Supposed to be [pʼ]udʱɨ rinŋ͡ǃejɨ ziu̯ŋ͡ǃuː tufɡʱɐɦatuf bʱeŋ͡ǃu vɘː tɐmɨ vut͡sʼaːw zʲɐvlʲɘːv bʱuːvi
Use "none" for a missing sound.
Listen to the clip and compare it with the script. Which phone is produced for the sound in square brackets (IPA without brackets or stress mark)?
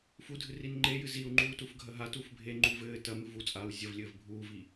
f